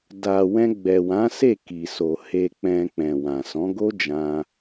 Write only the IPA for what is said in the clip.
da˨wɛ̃˧ɡ͡bɛ˨wã˨˦ se˦˨ki˨so˨ he˧k͡pɛ̃˧ k͡pɛ̃˨wã˨ sɔ̃˨˦ɡo˦d͡ʒã˧

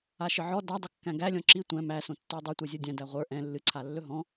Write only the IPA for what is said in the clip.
aʃɨʕɔ da dˤɵkːæ̃ɡælʲɔ̃ ǁi tʷæ̃ mæsõ tːə˞dˤitʷɛ zʲə˞dʲæ̃dæ ʁʷə˞ ʔɛ̃ lːɨǀʰalːɵ ɦɔ̃

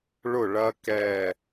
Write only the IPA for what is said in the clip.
ɭʊ˥˨ɭɐ˦˥ kɛ˥˨

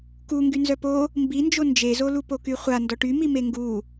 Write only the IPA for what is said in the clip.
kuŋɡy nzœpo | mbind͡ʒo nd͡ʒezolupo kyχʷa ndɔʈymi meŋɡu

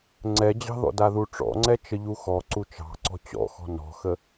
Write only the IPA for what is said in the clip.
ŋ͡ǀɛd͡ʑɑ̤ðɔ̰ daðuʈ͡ʂɔ̰ŋ͡ǀɛ t͡ʃəʎuxɔ ǀut͡ʃɑ̤ǀɔ̤ t͡ɕɔ̰xɔ̤ nɔ̤xə

